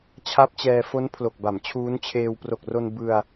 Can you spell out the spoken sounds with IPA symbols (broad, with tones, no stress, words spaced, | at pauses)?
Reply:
t͡ɕʰa˦˥p̚t͡ɕɛː˧ fo˦˥npʰlo˨˩k̚ ba˩˦mt͡ɕʰuː˦˥nt͡ɕʰeː˧w pro˨˩k̚ro˧n bɯ˧a̯